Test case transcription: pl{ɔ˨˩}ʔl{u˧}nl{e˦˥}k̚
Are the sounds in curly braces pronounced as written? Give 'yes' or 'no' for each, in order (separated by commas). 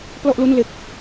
no, no, yes